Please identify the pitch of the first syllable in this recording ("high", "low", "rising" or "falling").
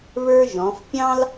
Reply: high